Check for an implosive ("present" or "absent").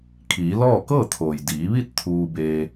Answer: absent